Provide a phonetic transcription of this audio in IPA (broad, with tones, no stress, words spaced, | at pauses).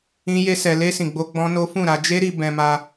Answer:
ĩ˦ je˦sɛ˧ le˦ sĩ˧ɡ͡bo˦ ɡ͡bɔ̃˦no˦ fũ˦˨ɾa˧ d͡ʒe˦ɾi˧ bɛ̃˧ma˧